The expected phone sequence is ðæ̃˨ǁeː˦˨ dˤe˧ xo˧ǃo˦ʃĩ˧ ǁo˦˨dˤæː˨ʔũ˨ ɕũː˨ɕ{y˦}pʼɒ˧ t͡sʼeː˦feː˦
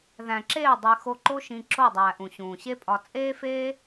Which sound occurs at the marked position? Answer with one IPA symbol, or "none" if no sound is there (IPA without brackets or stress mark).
e˦